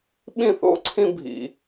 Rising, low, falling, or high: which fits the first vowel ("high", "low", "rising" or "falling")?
falling